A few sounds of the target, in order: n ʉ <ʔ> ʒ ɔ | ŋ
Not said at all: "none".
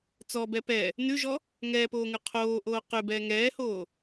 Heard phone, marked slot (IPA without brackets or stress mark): none